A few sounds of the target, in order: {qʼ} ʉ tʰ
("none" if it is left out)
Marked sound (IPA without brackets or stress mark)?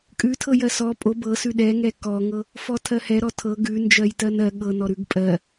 kʼ